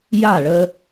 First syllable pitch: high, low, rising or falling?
falling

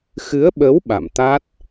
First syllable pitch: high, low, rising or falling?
rising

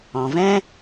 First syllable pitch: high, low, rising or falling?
low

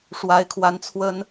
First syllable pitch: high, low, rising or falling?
rising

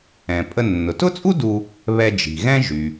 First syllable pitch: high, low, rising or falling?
low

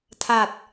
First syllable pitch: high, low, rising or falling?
low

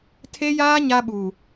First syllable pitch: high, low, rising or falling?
high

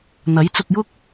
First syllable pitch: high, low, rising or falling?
rising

